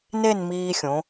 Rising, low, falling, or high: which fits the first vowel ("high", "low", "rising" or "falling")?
falling